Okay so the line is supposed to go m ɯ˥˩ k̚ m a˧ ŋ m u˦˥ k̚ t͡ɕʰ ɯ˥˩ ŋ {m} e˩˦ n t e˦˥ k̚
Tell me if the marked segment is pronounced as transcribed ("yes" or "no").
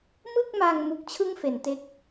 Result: no